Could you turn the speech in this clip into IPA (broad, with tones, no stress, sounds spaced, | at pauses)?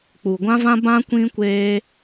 k͡p u˨ ɡʷ ã˦ v ã˦ b ã˦ kʷ ĩ˦ kʷ eː˦